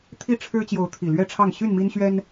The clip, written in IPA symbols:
t̪ʰ i˥˨ ʈ͡ʂʰ ɻ̩˦ t͡ɕ j o˨˦ ʊ̯ t̪ʰ i˨˩ l ɥ ɛ˥˨ ʈ͡ʂʰ ɑ˥˨ ŋ ɕ y˥˨ n m i˦ n ɕ ɥ ɛ˦ n

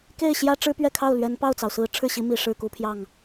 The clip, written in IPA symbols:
k e˥˩ ɪ̯ ɕ j ä˥ ʈ͡ʂ ɻ̩˥ p ɥ ɛ˥˧ kʰ ɑ˥˩ ʊ̯ l ɥ ɛ˧˥ n p ɑ˥˩ ʊ̯ t͡s ɑ˩ ʊ̯ s ɹ̩˧˥ ʈ͡ʂʰ ɻ̩˥˩ ɕ i˧˥ m i˨˩ ʂ ɻ̩˥˩ k u˧˥ pʰ j ɑ˥˩ ŋ

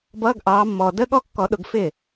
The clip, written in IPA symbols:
b ʌː˧˥˧ ɡ ʔ ɑː˨˦ mː ɔː˨ d ə˧˥˧ ɠ ɔ˥˩ kː ɔ˨˩˦ ɗ ʊ˨˦ ɡ f ɪ˥˩

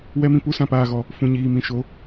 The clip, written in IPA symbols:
w ɛ˧ m ĩ˨ p u˧ s ã˨ p aː˨ ɣ ɔ˨ | f ũ˨ ɲ iː˨ m ĩ˨ ʃ o˨˦

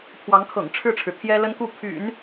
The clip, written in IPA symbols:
pʰ w ɑ˧˥ ŋ kʰ ɤ̰˨˩ ŋ ʈ͡ʂʰ ɻ̩˥˩ ʈ͡ʂʰ ɻ̩˩ t̪ʰ j ɛ˥ l ə˥ n k u˥˩ pʰ y̰˨˩˦ n

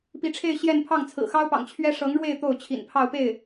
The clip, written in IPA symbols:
p i˧˥ ʈ͡ʂʰ e˥˧ ɪ̯ ɕ j ɛ˥˧ n pʰ ɑ˥˩ ŋ t͡sʰ ɹ̩˨˩ x ɑ˥ ʊ̯ p ɑ̰˨˩ ŋ t͡ɕʰ ɥ ɛ˥ ʂ ɤ˧˥ ŋ ɻ w e˥˧ ɪ̯ t̪ o˥˩ ʊ̯ t͡ɕʰ ḭ˨˩ n pʰ ɑ˥˧ ʊ̯ p e˥˩ ɪ̯

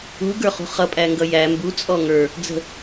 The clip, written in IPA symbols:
u ɡ ə˞ χ ṳ χ ʌ pʼ æ ŋ ɡ ʌ j æ m b u t͡sʼ ɔ ŋ ə˞ | d͡z ə̤

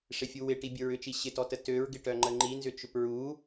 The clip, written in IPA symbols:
ʂ ɪ fʲ u w ɪ ʈ i bʲ ʊ ɹ ʏ t͡ʃ i ɕ ɪ t ɔ t ə t ø ɹ ɡ ɪ ʈ œ ŋ͡ǃ ə ŋ͡ǃ i n z ʏ t͡ʃ ʏ p ɹ u

